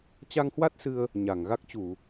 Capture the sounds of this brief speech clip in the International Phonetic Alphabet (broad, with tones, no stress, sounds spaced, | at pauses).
t͡ɕ a˧ ŋ h w a˦˥ t̚ s ɨ˧ ə̯ | ɲ a˧˩ ŋ ɣ a˦˥ k̚ t͡ɕ u˧˩˨